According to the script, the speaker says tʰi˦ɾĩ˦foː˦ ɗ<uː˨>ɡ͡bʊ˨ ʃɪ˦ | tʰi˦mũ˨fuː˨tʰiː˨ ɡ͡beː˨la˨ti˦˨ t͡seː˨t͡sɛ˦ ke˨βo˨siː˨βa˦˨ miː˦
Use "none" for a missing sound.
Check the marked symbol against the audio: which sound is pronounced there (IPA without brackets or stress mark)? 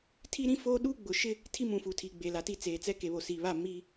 uː˦